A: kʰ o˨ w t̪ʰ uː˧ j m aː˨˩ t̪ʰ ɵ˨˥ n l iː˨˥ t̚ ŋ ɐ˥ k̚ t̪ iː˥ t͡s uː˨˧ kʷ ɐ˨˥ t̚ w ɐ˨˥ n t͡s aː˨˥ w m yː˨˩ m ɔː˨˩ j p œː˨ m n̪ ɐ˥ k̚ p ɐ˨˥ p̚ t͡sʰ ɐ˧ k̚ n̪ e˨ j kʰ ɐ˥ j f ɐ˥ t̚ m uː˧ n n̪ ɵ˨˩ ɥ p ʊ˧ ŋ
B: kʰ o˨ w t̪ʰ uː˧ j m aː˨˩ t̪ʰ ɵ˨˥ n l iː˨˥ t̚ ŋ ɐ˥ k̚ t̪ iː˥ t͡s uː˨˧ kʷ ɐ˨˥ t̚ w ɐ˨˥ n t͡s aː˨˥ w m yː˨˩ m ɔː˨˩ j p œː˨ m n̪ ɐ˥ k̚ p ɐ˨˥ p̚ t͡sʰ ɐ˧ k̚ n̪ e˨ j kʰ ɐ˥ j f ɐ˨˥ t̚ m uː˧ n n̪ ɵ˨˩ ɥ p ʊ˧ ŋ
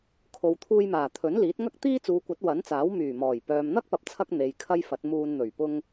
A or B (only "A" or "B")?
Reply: B